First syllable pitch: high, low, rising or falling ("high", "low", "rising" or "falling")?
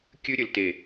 high